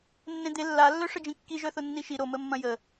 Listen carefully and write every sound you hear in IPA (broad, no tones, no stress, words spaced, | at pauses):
nːẽd̪e lːalːœ ʂəd͡ʒĩkːi ʒœθʊnːiʃi ɾoməmːɐ̃ jə